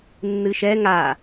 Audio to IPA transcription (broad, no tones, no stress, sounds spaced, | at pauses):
nː ɨ ʃ ɛ ŋ a